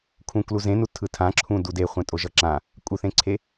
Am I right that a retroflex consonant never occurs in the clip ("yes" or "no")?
yes